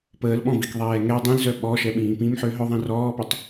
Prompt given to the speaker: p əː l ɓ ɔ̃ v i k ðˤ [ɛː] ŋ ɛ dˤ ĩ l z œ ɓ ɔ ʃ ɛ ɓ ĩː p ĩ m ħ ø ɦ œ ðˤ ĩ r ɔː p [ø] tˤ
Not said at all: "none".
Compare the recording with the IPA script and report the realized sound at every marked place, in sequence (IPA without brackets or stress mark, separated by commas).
ɛː, ø